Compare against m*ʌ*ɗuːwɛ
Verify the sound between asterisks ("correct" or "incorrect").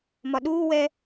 incorrect